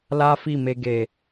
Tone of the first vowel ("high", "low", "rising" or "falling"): high